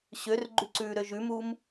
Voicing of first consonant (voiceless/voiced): voiceless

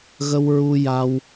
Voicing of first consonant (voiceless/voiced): voiced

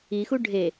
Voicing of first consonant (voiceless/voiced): voiceless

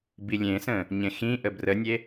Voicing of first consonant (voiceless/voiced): voiced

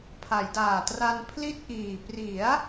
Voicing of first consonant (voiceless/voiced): voiceless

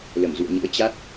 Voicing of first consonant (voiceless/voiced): voiced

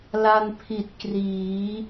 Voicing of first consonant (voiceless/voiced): voiced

